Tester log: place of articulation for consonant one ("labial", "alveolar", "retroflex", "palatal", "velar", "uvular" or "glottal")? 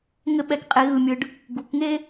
velar